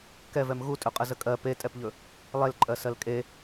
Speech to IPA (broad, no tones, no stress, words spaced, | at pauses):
kɛvɛm ɣutʼɵqʼə zəkʼɜ petʼɛpʎɵ | lˠelǃʼɜ sɜlkʼe